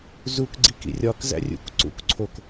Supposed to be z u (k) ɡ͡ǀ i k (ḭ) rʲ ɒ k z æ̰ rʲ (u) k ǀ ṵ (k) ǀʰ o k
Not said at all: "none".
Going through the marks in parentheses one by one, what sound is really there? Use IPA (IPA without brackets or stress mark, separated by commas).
k, ḭ, ṵ, k